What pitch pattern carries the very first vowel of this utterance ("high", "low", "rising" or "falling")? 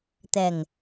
low